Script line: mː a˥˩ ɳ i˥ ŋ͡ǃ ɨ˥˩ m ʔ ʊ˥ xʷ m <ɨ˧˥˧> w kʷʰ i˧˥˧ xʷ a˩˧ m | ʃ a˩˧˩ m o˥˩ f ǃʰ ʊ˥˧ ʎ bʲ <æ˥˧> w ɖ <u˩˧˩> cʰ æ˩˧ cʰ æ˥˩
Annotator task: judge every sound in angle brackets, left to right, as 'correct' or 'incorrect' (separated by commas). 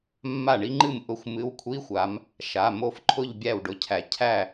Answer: correct, incorrect, incorrect